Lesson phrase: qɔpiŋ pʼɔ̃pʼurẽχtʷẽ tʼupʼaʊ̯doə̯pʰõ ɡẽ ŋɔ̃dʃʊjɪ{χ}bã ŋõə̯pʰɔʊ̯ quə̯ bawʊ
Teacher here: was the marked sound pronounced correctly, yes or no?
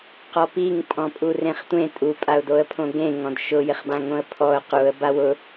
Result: yes